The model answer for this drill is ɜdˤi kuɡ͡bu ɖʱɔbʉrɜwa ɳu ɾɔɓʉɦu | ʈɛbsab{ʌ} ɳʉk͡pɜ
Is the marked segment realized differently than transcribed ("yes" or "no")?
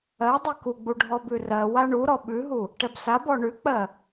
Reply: yes